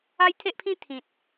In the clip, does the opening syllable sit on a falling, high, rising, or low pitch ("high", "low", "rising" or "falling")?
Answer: high